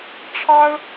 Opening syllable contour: high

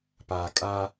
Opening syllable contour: low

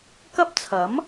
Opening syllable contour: high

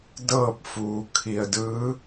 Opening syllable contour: falling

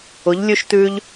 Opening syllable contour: rising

